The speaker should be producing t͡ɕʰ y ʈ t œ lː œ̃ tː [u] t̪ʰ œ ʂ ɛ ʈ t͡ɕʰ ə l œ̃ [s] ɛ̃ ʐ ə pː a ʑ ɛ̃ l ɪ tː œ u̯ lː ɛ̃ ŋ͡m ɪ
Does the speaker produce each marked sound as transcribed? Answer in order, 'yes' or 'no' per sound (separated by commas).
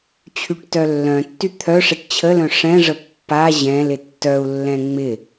no, no